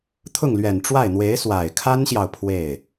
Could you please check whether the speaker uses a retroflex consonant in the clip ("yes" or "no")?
yes